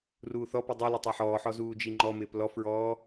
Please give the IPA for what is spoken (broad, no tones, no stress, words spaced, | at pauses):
ruːθɔpi dˤi lɪtˤɜħɔːħɔ zuːd͡ʒiŋ͡ǃɔmɪːp lɔfɹɔː